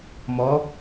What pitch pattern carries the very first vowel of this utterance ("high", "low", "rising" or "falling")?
rising